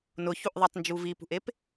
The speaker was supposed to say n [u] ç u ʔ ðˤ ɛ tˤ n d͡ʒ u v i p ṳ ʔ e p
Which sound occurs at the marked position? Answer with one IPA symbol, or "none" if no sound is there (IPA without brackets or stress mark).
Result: ʊ